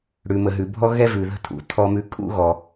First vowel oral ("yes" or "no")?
yes